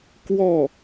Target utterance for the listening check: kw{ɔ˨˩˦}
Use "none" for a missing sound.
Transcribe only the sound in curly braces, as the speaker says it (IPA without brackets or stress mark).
ɔ˥˩